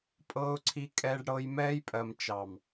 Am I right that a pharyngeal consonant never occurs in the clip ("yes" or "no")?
yes